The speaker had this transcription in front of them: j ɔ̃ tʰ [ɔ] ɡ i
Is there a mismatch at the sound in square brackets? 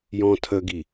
yes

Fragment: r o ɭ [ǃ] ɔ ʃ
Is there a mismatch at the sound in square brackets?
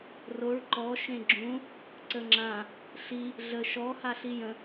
no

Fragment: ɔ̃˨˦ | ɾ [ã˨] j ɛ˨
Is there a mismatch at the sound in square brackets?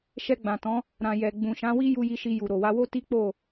no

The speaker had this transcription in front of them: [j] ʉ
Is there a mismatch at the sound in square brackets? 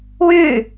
yes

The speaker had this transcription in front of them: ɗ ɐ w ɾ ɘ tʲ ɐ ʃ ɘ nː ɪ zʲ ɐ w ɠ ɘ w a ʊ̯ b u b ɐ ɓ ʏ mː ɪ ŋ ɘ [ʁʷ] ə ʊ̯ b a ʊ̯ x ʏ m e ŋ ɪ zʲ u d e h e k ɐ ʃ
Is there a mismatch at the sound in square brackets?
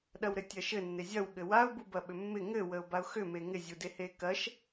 yes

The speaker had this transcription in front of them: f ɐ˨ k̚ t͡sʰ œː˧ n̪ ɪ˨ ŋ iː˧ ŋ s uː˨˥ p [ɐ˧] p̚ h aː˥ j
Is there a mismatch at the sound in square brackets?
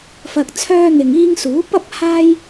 yes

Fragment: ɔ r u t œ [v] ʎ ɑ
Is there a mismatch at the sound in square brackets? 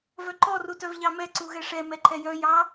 no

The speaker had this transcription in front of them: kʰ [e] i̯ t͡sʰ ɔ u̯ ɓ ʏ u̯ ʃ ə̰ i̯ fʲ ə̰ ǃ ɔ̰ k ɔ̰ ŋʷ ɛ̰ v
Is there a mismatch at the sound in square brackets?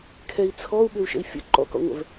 yes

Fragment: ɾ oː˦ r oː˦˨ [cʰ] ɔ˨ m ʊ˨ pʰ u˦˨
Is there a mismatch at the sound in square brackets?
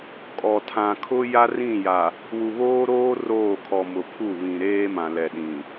yes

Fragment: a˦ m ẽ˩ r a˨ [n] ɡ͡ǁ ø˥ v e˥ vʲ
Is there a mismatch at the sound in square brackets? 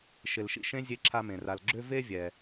yes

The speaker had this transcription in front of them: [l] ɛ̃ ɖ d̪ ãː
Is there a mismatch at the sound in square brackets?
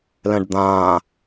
no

